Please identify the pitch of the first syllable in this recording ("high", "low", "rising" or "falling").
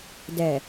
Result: low